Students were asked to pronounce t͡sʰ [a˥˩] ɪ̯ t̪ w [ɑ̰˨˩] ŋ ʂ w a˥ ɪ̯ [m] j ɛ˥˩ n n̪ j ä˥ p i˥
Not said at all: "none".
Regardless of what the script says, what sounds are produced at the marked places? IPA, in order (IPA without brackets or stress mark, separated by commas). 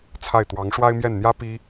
a˥˩, ɑ˧˥, m